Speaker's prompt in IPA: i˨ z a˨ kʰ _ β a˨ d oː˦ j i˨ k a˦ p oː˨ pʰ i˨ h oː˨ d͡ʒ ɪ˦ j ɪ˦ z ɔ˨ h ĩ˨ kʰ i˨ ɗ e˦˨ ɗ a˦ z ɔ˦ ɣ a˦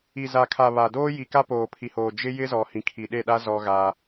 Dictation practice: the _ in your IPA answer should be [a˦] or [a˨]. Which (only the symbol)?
a˨